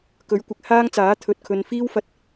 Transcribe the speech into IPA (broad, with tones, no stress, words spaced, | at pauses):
kɵ˨˥ɥkʷɪ˨k̚haː˥ŋt͡saː˨˥ t̪ʰɵ˧t̚kʰɵ˧n fiː˥wfɐ˧t̚